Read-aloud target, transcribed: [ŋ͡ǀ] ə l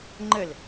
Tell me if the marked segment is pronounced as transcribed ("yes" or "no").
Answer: no